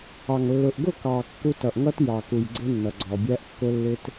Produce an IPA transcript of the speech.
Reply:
ɑ˨ŋlːʊ˨ʔɡʊ˦˨kɑ˨ kːu˦t ʌ˨ʔŋʌ˦t jɑ˨ku˨j ɡ͡ǀɪ˦nːʌ˨ɡ͡ǀɔ˨bʲæ˦ʔ kːʊ˦lːɪ˦t

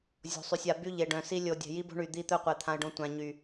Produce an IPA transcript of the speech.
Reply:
zʲo̤˨sˤy˨sʲa˨ by˦ʎe˨ɖœ̃˨si˦ lʲo˨ dʲɛ̤˨ji˦bo̤˦ ɳy˨d̪i˦˨t̪œ˦qʷɛ˨ t̪ʰã˦ə̯ɖõ˦ tʷã˨ɲy˨

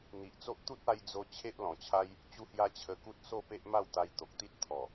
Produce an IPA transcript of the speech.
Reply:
n̪i˨ʔt͡so˦ʔ t̪u˦t̚a˧j d͡zo˧ t͡ɕʰe˦ʔlɔ̃˨˩t͡ɕʰa˦j | t͡ɕu˧hja˧ t͡ɕʰə˧ku˦t̚ so˥˧pe˦ʔ ma˥˧wt̪a˧j t̪o˨k̚t̪i˦t̚ t̪ʰɔ˨˩

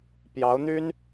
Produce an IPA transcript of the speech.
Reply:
pjɑ˧˥ʊ̯n̪y˥n

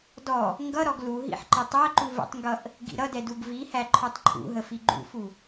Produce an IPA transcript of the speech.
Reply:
dɔ | ŋɡʌɾɔɡ luɦḭħ ǃʌtˤæǃu və̰tˤŋɡʌʔ | ɡḭɾʌdɛ duɡvihæ ǃʰɔtˤǃʰṵɦə fiɡ͡ǃṵfu

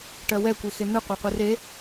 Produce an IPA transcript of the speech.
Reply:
ʈɜwɛkʷe xen̪ɯ qʷɑqʷɯre

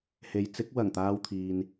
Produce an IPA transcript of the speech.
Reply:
he˨˧jt͡sɪ˨˥k̚ wɐ˨˩ŋ t̪aː˨w t̪ʰiː˨n

